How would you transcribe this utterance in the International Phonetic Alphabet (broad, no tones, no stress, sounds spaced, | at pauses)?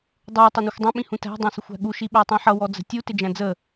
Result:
dˤ u tˤ ɛ n i xʷ dˤ ɛ̃ ɓ ĩ h ũ t æ̤ dˤ æ̃ s ə xʷ æ̤ ɠ u ʃ i ɓ æ tˤ ĩ ħ ʌ w ɔ d͡z ə̤ tʲ u t ɪ d͡ʒ æ̃ d͡z ə